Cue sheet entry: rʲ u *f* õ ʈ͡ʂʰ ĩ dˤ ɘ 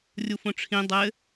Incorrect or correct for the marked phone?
correct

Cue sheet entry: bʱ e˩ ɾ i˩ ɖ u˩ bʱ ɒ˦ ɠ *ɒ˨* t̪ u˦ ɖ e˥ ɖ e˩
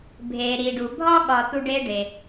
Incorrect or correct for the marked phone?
correct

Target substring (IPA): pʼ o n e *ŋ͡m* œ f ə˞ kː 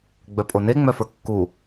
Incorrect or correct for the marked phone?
correct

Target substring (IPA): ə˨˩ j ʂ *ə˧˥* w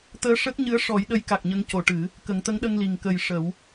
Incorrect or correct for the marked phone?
incorrect: ə˨˩˦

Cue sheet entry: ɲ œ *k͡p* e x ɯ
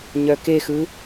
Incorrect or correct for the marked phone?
incorrect: k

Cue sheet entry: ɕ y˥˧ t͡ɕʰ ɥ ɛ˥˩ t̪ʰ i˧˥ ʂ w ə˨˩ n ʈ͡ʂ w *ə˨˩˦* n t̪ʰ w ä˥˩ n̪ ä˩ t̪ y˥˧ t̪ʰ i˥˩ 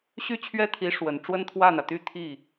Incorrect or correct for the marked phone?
incorrect: ə˥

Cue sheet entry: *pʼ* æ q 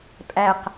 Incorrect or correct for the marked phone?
correct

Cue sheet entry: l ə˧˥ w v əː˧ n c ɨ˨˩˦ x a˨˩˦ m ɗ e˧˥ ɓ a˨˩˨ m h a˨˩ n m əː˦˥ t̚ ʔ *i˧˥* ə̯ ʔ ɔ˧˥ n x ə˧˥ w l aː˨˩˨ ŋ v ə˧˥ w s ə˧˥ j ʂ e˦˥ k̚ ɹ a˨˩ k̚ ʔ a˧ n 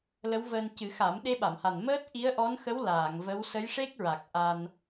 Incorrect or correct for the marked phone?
correct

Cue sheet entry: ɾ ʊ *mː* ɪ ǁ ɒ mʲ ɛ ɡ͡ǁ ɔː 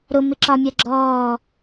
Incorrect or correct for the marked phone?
incorrect: m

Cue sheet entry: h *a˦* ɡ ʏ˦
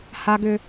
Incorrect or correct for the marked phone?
correct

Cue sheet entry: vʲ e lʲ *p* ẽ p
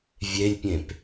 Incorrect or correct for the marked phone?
incorrect: pʲ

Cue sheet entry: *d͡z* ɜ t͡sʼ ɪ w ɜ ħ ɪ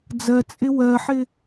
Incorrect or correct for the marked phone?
correct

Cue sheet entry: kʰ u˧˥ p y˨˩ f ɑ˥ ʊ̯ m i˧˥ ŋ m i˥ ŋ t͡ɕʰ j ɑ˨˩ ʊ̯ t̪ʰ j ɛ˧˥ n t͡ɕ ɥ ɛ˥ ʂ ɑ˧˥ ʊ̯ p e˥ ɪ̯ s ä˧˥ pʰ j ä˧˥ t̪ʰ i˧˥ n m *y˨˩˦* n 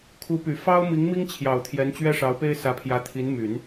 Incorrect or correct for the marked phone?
correct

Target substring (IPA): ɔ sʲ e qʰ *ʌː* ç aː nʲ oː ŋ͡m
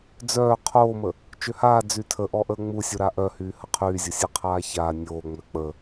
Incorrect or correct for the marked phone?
incorrect: aː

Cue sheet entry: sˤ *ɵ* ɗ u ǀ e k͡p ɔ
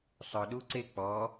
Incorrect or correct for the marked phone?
correct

